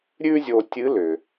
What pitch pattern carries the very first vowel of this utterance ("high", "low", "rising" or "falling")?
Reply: high